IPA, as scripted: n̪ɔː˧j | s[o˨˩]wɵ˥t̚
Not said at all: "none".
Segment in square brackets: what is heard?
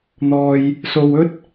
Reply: o˧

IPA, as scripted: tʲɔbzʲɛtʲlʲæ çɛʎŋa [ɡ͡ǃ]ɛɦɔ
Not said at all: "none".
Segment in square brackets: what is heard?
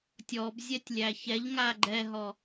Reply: ɡ͡ǃ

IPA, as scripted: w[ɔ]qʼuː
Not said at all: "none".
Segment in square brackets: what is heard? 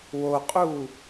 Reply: o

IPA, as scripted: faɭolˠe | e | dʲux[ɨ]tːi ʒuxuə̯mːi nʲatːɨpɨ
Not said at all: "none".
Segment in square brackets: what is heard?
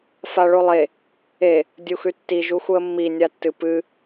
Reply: ʉ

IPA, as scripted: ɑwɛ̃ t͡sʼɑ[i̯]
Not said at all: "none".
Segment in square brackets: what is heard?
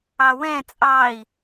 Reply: i̯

